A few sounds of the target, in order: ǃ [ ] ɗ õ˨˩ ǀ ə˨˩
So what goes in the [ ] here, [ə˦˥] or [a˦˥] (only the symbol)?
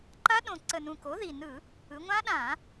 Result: a˦˥